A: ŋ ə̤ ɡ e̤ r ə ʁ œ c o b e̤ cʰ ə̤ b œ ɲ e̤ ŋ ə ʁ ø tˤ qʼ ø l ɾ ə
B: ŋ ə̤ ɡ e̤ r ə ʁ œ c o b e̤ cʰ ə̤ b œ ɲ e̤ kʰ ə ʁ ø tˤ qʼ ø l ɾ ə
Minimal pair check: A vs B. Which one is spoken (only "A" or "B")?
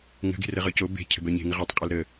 A